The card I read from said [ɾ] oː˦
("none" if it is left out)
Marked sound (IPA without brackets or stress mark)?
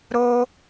ɾ